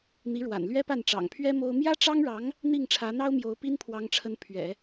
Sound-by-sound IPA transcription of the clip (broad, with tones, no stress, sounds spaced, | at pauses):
n̪ i˧˥ ɻ w a̰˨˩ n l ɥ ɛ˥ p a˥˩ n ʈ͡ʂ ɑ̰˨˩ ŋ pʰ ɥ ɛ˥ m o˥ ʊ̯ m j ä˥ ʈ͡ʂ ɑ˥ ŋ ɻ ɑ˧˥ ŋ | n̪ i˥˩ ŋ ʈ͡ʂʰ ä˧˥ n̪ ɑ˥ ʊ̯ m j o˧˥ ʊ̯ p i˥ n pʰ w ɑ˧˥ ŋ ʈ͡ʂʰ ə˧˥ n pʰ ɥ ɛ̰˨˩˦